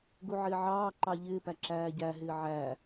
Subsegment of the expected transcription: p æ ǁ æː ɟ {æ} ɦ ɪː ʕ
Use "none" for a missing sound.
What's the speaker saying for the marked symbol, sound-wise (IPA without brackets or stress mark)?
æ